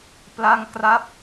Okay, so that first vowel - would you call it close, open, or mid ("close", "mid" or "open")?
open